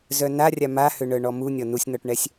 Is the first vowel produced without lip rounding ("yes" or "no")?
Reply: no